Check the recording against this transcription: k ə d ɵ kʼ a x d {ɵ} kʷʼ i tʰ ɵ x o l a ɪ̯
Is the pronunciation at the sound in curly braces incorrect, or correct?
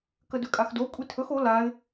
incorrect: o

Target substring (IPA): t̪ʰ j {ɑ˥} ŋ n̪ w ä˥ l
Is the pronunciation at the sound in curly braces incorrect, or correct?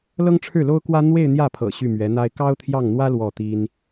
incorrect: ɑ˥˩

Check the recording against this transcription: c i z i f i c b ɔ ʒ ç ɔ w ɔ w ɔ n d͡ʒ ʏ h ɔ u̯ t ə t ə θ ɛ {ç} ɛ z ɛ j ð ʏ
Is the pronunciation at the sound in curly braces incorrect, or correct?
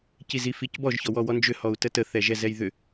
incorrect: ʒ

